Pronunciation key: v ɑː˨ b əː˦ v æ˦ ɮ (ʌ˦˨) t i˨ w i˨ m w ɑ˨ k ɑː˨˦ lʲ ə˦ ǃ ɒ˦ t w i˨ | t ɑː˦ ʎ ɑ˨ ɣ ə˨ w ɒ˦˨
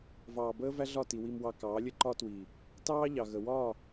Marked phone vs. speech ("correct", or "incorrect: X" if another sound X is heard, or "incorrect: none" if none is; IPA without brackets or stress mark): incorrect: ɒ˦˨